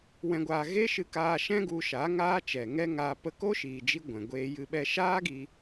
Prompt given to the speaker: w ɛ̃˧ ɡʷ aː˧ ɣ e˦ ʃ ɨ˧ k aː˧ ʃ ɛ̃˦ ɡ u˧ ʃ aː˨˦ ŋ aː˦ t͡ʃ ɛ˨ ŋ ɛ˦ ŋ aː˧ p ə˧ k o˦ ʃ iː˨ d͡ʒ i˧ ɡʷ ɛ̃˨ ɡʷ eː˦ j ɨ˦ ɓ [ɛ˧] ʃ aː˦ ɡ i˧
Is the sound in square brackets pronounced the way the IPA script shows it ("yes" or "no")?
yes